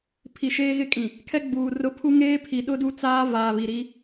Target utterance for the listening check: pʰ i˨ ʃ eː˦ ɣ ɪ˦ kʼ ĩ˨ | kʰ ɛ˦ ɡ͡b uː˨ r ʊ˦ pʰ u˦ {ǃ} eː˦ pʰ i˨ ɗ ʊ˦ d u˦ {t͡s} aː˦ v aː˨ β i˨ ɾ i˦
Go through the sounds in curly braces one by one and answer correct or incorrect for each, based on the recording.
incorrect: ŋ, correct

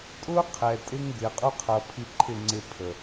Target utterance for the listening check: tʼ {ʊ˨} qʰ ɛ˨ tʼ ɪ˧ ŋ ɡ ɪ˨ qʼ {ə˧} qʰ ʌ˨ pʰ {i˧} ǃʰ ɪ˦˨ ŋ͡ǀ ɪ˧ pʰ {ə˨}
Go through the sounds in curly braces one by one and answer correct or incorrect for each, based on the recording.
incorrect: ʊ˦, incorrect: ʊ˧, correct, correct

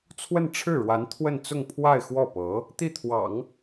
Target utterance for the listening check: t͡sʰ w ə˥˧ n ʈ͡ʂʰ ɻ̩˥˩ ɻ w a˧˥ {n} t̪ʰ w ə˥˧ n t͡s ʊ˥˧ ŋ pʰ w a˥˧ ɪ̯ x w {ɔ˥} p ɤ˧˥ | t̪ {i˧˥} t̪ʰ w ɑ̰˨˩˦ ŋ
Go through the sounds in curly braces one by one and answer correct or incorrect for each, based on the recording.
correct, incorrect: ɔ˥˩, incorrect: i˥˩

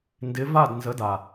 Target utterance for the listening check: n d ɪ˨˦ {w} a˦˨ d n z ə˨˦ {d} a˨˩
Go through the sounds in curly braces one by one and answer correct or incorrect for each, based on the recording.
incorrect: v, correct

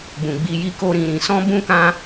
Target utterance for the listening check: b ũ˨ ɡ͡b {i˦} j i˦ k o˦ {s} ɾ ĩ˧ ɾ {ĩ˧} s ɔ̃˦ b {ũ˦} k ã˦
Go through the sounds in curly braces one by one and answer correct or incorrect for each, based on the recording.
incorrect: i˧, incorrect: none, correct, correct

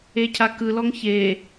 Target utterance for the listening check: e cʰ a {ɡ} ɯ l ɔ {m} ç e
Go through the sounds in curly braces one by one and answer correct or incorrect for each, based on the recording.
incorrect: k, incorrect: ŋ

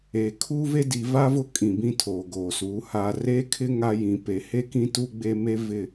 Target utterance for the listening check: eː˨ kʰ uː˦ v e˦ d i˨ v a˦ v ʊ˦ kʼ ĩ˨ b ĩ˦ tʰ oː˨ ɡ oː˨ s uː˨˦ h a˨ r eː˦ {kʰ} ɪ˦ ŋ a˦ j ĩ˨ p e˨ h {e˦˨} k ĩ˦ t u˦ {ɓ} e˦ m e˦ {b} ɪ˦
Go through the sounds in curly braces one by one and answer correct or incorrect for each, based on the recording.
correct, incorrect: e˦, incorrect: ɡ͡b, incorrect: v

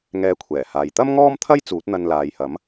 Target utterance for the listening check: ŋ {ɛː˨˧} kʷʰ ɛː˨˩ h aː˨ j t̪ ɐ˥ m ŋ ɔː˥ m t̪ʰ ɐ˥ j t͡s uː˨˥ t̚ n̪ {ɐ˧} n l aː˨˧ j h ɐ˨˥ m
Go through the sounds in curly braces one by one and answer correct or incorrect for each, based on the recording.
incorrect: ɛː˧, correct

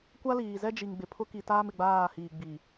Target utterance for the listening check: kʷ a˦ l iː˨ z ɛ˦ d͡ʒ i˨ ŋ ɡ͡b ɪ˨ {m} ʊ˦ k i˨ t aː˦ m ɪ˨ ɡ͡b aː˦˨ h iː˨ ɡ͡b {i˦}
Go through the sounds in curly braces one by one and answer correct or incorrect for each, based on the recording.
incorrect: pʰ, incorrect: i˨

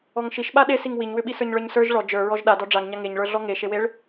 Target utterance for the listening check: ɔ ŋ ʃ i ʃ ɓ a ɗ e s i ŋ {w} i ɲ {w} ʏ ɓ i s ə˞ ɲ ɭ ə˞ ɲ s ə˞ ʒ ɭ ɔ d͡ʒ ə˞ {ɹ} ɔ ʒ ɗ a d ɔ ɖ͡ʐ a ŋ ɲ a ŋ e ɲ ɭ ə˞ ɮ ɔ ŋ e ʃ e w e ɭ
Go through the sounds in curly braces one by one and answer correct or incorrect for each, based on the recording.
correct, correct, correct

